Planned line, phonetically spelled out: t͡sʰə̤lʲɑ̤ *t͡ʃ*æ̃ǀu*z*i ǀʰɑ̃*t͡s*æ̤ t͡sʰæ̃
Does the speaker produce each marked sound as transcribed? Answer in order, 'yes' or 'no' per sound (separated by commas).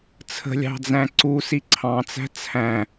no, no, yes